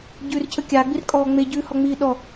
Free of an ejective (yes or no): no